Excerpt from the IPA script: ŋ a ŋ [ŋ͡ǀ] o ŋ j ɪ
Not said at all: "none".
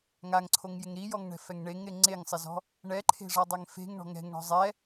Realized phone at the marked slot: ǀʰ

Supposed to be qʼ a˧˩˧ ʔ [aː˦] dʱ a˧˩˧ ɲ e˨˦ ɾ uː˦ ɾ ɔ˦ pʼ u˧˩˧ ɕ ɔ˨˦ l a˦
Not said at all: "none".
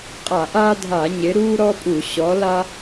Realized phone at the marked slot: aː˦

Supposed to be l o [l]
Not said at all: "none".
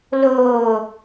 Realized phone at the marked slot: none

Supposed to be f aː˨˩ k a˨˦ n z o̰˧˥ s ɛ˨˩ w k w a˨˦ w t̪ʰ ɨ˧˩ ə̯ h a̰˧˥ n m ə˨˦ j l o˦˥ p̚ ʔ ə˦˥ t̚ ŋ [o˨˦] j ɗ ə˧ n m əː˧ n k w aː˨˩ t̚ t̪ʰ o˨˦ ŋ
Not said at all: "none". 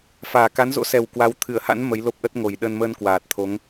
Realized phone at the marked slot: o˨˩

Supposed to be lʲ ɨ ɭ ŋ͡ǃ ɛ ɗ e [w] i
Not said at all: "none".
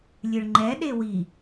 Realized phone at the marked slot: w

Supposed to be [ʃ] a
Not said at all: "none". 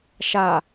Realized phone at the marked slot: ʃ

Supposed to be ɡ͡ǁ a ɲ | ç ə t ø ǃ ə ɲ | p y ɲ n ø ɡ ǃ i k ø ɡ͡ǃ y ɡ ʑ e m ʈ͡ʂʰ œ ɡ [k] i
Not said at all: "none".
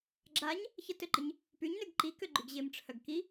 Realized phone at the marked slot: k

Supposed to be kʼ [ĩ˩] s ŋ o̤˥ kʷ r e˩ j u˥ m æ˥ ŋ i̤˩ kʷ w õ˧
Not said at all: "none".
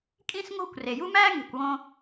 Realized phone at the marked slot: ĩ˥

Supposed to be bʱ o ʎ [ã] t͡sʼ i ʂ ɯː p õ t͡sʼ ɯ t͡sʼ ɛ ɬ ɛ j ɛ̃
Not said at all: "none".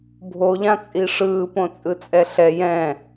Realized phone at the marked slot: ã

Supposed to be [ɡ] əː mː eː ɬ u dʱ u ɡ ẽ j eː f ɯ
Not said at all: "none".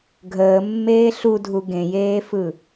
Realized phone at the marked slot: ɡʱ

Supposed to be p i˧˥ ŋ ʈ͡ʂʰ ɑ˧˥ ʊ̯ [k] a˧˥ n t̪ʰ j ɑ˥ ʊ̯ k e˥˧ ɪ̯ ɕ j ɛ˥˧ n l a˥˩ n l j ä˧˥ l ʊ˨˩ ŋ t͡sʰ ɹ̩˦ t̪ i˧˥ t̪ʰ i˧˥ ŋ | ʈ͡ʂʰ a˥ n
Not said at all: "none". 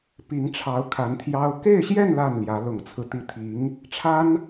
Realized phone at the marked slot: kʰ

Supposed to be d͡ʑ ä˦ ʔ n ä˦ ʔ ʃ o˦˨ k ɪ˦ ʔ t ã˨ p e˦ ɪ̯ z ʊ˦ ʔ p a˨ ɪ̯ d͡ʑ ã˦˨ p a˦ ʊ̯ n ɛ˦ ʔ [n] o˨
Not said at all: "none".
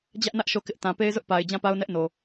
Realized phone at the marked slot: n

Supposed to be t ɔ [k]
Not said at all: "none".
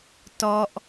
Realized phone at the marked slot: ʔ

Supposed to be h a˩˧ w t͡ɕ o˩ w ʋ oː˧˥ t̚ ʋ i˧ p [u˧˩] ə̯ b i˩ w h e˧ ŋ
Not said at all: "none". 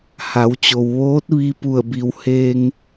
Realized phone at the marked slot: u˧˩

